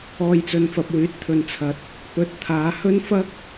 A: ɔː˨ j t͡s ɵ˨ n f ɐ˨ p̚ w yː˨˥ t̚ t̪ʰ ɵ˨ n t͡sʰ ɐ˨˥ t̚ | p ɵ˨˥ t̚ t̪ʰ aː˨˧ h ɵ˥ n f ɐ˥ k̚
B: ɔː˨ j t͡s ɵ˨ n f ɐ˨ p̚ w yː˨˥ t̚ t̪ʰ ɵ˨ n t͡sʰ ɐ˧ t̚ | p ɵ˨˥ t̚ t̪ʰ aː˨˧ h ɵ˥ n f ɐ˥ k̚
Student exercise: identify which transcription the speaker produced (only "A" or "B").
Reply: A